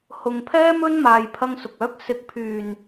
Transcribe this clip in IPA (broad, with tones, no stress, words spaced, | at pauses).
hʊ˨ŋpʰɛː˥mɵ˥n maː˧jpʰɐ˥ŋsʊ˨k̚ œː˨˥k̚sɪ˨˥k̚pʰyː˨˩n